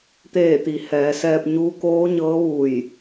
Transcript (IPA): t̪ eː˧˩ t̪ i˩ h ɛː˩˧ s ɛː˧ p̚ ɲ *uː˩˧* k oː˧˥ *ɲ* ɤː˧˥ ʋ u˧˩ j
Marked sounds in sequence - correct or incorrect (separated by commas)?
incorrect, correct